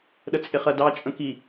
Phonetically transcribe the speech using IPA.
ɗ ə t͡sʼ ɪ χ ɜ d ɑ t͡ʃʼ ə̃ k i

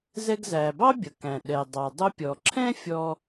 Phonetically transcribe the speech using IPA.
z ɛ˧ ɡ z æ˩ b ɑ˥ bʲ ʌ˩ k æ̃˩ ɗ ɛ˩ dˤ ɑ˩ dˤ ʊ˧ pʲ ɔ˩ ǁʰ ɛ̃˥ fʲ ɔ˧

